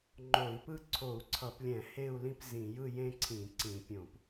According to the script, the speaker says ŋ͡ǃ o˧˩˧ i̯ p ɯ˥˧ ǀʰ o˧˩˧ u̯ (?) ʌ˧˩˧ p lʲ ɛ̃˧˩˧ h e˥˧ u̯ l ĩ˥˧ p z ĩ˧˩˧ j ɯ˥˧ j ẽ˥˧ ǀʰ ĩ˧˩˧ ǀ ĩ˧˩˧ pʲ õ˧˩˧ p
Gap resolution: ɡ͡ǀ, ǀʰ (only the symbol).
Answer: ǀʰ